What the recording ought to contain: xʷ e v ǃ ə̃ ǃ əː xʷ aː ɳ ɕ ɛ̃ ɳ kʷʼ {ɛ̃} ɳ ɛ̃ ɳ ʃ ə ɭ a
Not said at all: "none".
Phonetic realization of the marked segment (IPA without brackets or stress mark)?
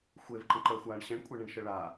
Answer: ɛ